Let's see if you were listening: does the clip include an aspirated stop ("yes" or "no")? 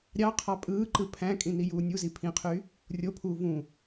yes